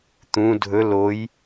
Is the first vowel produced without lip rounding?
no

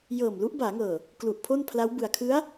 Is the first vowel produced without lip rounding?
yes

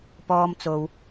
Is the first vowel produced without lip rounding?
no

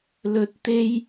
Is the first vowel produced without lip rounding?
no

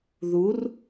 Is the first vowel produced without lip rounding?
no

